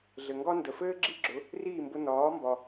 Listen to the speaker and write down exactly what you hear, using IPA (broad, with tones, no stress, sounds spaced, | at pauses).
ɮ ɘ˩ ŋ ɡ ɒ˥ n d ə˩ f ɘː˥ ɡ͡ǁ i˥ ɡ͡ǁ ʊ˩˥ | r iː˥˩ m b ʊ˧ n ɒː˩˥ m b ɒ˩